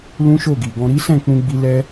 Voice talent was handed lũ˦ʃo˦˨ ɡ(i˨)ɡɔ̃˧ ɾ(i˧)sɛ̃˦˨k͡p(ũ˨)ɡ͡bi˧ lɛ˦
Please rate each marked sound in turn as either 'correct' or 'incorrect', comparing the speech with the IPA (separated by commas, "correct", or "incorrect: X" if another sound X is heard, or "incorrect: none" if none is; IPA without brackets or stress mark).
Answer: correct, incorrect: i˦, incorrect: ũ˧